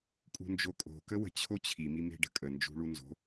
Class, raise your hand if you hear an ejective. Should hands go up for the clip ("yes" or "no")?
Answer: yes